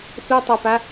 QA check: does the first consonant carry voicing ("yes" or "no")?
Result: no